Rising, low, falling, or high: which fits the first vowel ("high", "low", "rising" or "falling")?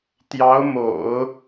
rising